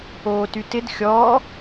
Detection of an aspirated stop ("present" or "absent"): absent